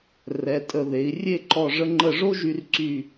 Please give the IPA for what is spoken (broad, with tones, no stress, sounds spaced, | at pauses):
r ɛ˩˧ tʼ ə˧˩ ð e˩˧ i̯ rʲ e˥˧ ǃ ɔ˧˩ ʐ ə˧ ŋ͡ǃ ə˧˩ ʐ o˥ ʒ y˧ r ǀ y˧˩